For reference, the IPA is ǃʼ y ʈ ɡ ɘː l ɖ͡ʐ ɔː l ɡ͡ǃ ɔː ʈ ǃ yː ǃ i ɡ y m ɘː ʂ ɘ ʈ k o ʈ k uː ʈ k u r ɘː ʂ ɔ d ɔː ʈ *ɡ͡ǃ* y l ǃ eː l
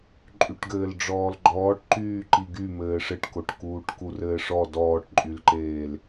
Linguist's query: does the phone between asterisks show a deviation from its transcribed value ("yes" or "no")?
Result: yes